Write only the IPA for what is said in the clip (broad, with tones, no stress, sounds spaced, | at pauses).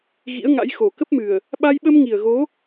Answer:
ɣ ḭ˧˥ ə̯ ŋ a̰˧˥ j x o˨˩ k ə˦˥ p̚ m ɨ˨˩ ə̯ | ɓ a˧ j ɓ ə˧ m ŋ i˨˩ ə̯ ɣ o˨˦